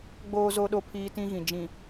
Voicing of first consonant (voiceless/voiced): voiced